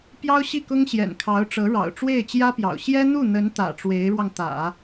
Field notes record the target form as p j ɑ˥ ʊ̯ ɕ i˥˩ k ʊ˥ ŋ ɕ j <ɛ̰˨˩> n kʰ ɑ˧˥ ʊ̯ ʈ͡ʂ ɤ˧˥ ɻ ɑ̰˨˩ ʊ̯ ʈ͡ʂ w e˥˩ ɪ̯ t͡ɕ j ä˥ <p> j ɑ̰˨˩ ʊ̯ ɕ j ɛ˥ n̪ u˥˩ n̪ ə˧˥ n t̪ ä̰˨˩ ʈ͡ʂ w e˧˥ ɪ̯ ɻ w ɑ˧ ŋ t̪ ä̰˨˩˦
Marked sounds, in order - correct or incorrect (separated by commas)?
correct, correct